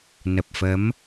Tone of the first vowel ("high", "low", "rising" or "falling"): low